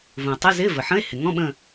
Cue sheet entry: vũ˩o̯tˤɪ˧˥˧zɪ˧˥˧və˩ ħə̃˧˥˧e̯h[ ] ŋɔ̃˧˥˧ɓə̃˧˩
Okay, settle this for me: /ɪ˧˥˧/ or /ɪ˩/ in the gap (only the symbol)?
ɪ˩